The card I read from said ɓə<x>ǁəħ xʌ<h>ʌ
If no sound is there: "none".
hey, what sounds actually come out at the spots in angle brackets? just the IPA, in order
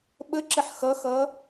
none, x

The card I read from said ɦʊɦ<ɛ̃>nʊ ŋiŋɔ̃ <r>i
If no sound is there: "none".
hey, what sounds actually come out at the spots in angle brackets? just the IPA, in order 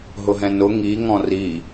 ɛ̃, r

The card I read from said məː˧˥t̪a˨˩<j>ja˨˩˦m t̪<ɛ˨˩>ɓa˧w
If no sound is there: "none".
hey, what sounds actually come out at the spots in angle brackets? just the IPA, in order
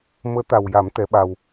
w, ɛ˧˥

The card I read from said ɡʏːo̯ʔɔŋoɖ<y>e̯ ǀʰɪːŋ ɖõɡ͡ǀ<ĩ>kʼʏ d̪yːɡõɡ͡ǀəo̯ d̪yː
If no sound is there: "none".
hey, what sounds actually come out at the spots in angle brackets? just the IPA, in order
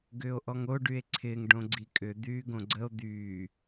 y, i

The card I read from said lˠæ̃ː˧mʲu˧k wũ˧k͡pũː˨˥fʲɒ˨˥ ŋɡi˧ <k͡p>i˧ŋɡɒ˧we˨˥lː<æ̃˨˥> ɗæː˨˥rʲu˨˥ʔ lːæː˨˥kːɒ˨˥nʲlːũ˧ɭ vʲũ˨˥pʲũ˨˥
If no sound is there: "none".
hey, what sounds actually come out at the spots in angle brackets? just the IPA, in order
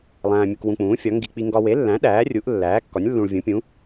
k͡p, æ̃˨˥

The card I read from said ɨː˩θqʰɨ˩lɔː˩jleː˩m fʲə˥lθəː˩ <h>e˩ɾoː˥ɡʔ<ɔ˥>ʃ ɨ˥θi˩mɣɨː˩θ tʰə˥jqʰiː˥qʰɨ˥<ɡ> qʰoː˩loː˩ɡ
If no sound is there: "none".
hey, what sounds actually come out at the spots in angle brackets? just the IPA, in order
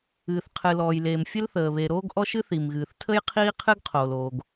β, ɔ˥, ɡ

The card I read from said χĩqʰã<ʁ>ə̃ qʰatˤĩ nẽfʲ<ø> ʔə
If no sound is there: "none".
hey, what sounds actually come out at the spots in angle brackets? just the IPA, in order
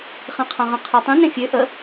ʁ, ø

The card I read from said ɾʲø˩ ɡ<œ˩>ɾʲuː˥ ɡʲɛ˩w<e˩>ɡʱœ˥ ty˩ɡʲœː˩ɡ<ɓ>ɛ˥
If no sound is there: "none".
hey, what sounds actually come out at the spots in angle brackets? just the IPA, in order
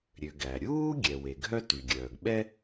æ˩, e˩, ɓ

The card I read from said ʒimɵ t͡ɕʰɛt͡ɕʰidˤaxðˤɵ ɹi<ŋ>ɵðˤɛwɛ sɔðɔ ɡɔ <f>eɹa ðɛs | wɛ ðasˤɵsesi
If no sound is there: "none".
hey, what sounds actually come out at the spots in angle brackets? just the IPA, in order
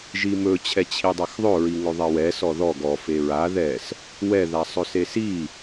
ŋ, f

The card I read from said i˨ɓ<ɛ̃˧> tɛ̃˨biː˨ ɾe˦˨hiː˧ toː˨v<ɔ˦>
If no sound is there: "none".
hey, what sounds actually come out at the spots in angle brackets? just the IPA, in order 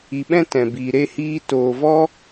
ɛ̃˦, ɔ˦

